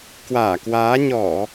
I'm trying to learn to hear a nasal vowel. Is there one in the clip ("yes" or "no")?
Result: no